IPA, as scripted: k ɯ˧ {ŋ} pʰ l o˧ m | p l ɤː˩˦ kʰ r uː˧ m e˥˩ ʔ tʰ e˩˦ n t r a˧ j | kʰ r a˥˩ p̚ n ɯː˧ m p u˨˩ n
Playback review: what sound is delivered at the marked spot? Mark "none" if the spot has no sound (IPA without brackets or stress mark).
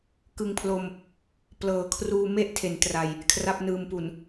ŋ